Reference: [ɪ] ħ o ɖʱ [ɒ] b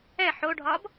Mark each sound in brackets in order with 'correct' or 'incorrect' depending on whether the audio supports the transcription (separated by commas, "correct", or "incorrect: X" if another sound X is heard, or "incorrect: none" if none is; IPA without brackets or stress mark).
incorrect: ɛ, correct